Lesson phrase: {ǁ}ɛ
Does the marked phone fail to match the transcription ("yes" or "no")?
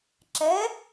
no